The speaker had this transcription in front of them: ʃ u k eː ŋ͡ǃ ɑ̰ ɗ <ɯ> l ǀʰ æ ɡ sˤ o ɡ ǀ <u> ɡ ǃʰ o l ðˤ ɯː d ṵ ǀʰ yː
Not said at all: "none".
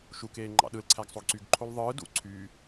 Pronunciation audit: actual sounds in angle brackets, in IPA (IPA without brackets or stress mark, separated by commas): ɯ, y